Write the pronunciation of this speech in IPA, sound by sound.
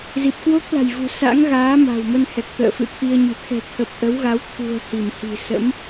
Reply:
z i˨˩ p̚ k w o˦˥ k̚ l a̤˨˩ j v ṳ˨˩ s a̰˧˥ ŋ ɣ aː˨˦ m a̤˨˩ w m ə˧ n h ɛ˨˩ k̚ t̪ ə̰ː˧˨ f ɨ̰˧˨ t̪ʰ i˧ ə̯ ɲ ɨ̤˨˩ t̪ʰ ɛ̤˨˩ t̪ʰ ə˨˩ p̚ ʔ ə˨˦ w ɣ a˨˦ w t̪ʰ ṳ˨˩ ə̯ h i˧˩ m h i̤˨˩ s ə̰˧˥ m

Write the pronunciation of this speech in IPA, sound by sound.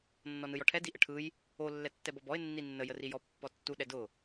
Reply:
nː ɔ n ɯ j ɔ ʈʰ ɛ d i ʔ ə ʈʰ ɯ j | o lː ɛ tː ɛ b ɔ b ɔ ɪ̯ nː i nː ə j ə r i j ɔ pː ɔ tː u ɗ ɛ d ʊ

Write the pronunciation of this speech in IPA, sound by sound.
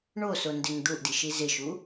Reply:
ɳ o s o n d ɪ ŋ d̪ u ʔ d i ʃ i z ɪ ʃ u

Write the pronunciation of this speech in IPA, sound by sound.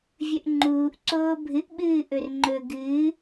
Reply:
vʲ ɵ ʔ ŋ͡ǃ uː ʔ ǀ oː bʱ ɨ ʔ ɓ ɨː ʔ ɵ r ŋ͡ǃ ɵ ɡ ɨː

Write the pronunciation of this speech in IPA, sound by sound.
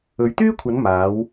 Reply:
ɵ˨˧ ɥ t̪ yː˥ kʷʰ ɐ˨˧ n m aː˨˧ w

